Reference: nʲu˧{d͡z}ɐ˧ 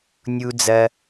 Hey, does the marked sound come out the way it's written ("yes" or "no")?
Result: yes